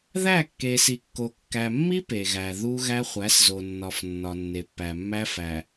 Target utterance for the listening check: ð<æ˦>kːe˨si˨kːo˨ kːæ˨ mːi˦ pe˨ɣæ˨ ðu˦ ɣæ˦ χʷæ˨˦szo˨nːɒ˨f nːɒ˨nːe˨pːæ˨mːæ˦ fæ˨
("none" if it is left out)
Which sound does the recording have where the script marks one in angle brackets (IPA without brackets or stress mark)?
æ˦˨